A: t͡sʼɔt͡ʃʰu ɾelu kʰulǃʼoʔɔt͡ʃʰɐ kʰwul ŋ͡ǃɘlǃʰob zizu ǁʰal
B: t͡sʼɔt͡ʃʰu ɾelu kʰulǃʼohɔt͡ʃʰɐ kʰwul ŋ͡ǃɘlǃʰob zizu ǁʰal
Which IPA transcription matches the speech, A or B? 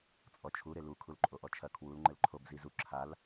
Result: A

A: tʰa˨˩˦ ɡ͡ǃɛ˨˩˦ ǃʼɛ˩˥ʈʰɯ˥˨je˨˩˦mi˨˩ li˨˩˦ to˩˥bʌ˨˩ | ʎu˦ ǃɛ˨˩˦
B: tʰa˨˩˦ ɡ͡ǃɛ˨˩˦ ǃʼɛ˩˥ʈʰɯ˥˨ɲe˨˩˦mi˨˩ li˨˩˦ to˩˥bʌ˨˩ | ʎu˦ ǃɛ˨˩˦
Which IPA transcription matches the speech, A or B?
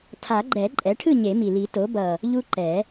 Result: B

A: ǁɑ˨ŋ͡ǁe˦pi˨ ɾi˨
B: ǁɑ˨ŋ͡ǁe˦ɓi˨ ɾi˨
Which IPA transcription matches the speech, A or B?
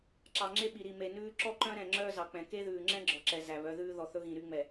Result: B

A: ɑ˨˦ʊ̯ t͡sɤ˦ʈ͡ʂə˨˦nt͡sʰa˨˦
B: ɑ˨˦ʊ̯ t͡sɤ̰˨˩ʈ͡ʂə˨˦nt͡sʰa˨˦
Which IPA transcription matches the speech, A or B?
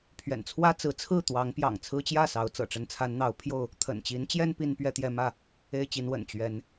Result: B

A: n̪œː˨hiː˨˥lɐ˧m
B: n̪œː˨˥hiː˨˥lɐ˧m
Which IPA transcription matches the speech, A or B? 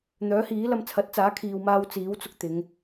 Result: B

